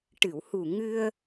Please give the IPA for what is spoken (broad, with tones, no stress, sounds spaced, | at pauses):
ʈ ɨ˨˩˨ w h u˨˩ ŋ ɨ˧ ə̯